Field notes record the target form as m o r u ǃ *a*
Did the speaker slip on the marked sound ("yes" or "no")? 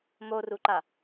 no